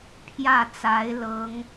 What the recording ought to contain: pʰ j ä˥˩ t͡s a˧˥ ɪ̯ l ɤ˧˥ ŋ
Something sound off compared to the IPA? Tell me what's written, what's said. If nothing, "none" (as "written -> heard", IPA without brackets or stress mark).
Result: none